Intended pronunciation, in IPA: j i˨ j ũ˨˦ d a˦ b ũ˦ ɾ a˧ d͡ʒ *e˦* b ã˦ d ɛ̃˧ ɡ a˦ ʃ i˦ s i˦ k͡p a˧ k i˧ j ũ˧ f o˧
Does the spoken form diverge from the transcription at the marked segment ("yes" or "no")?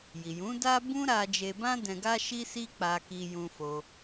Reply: yes